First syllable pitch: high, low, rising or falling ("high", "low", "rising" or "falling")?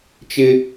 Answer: high